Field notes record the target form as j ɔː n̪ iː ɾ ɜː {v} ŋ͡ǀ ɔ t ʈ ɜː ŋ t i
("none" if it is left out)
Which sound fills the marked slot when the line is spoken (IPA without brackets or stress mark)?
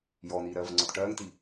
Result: v